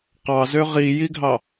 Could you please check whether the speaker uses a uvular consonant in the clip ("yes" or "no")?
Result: yes